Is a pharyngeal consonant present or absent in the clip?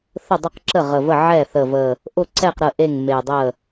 present